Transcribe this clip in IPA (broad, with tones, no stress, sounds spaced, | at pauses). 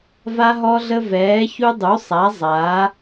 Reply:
v a˦ ɦ ɔ˦ ɮ ə˦ v ɛː˩˥ ç u˦ dˤ u˩˥ sˤ a˩˥ zˤ a˩˥